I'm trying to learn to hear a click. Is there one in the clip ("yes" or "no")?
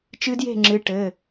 yes